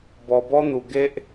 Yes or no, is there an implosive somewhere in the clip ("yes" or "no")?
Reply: no